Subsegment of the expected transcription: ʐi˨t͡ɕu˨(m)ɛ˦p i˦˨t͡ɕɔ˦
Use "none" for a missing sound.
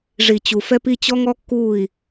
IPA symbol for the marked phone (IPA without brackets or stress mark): f